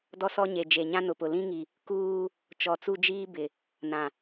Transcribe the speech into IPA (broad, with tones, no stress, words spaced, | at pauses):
dɔ˦sɔ˦ɲe˨ d͡ʒe˨ɲã˦ nʊ˨pʊ˨ lĩ˦ŋi˨ | kuː˦ | t͡ʃɔ˨t͡su˦d͡ʒiː˦ bɪ˨ | nã˨